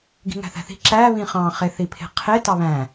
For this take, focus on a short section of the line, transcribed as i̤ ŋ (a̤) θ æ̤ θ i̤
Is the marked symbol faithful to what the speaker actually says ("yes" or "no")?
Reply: no